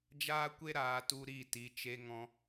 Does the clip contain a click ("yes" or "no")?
no